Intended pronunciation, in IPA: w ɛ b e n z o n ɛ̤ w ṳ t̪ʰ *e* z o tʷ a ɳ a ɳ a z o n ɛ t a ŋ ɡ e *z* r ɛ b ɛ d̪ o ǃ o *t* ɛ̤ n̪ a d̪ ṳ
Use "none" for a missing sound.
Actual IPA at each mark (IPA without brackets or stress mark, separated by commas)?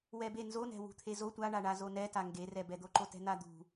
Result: e, none, t